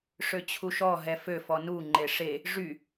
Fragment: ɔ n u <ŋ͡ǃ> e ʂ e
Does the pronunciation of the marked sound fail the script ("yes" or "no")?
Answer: no